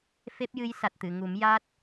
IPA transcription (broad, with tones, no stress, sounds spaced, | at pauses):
f e˦˥ p̚ j ɨ˧˥ j s a˨˩ t̚ t̪ ɨ˨˩˨ ŋ u˨˩˦ m j a˦˥ t̚